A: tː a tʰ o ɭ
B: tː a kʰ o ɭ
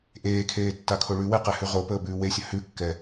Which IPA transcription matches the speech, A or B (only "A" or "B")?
B